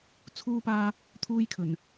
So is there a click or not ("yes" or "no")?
no